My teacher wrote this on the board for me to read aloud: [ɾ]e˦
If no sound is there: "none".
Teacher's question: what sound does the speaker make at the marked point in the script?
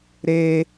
ɾ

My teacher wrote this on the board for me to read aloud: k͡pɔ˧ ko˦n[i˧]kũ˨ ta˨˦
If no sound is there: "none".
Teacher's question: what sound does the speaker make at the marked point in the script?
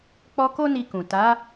i˧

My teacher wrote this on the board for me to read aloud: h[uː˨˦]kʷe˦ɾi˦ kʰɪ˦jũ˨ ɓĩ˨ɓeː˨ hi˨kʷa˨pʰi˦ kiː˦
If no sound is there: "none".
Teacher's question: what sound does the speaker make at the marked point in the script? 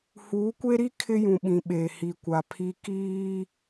uː˨˦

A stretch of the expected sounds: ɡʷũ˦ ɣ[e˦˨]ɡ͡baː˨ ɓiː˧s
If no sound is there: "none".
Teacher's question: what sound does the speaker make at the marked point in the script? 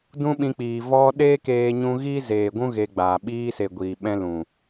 e˧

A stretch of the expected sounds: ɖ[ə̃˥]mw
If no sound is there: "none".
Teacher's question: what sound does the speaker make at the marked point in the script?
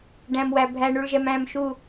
æ̃˥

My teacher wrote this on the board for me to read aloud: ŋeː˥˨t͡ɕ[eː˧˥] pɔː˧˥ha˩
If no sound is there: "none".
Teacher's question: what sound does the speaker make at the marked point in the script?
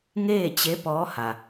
e˧˥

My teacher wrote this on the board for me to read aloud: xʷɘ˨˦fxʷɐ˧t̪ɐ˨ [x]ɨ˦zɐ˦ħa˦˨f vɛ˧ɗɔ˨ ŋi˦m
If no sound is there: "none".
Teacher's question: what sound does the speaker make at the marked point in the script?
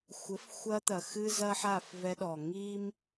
x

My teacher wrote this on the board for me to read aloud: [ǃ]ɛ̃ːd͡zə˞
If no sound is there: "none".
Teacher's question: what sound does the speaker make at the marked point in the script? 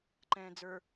ǃ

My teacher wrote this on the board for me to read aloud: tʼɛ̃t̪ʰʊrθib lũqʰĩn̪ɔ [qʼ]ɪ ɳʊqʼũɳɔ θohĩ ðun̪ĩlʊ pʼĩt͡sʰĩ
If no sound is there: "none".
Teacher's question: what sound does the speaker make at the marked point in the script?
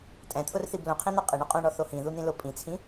qʼ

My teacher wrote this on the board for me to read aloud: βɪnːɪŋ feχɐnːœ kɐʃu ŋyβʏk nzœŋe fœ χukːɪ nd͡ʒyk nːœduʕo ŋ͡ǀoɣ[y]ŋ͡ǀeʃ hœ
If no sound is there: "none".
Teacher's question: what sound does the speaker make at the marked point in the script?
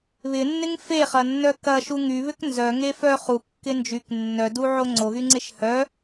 y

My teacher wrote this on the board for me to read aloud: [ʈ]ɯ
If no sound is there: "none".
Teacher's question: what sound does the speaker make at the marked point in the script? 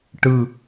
ʈ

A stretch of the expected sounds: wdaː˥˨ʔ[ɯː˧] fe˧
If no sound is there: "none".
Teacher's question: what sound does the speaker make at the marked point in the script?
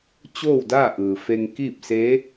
ɯː˩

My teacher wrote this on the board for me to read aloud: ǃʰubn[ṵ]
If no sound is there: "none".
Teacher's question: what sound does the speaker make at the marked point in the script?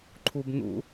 ṵ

